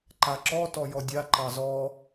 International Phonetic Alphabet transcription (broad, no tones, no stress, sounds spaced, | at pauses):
ǃ a ǁ ɔ t ɔ j ɔ dʲ a ǃ ɑ z ɔ